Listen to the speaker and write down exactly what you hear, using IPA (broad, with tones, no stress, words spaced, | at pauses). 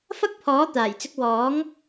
fɐ˥k̚pʰɔː˨˥t̪aː˨˩jt͡sɪ˧k̚ wɔː˨˥ŋ